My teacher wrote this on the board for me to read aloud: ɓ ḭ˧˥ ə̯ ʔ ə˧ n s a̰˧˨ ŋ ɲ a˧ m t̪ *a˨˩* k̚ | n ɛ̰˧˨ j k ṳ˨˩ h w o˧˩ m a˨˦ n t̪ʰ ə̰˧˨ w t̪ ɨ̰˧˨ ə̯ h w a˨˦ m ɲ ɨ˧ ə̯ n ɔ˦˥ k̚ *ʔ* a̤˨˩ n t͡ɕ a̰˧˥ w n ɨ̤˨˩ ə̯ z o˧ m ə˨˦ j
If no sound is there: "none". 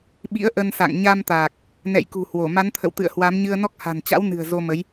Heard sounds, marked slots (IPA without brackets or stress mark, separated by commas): aː˨˩, h